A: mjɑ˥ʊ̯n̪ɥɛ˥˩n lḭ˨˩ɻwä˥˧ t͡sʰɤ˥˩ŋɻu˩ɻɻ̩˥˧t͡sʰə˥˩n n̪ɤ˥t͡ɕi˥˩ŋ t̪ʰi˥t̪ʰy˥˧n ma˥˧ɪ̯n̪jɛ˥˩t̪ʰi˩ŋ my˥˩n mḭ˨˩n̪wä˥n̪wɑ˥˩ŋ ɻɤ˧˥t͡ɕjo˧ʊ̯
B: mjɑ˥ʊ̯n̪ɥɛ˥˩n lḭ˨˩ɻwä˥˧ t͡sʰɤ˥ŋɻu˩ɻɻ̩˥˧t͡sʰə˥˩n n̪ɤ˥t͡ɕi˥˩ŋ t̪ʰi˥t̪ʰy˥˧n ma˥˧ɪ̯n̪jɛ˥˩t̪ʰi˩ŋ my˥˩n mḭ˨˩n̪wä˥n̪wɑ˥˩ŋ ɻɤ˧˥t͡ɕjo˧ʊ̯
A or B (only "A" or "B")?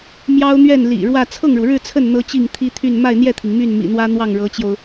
A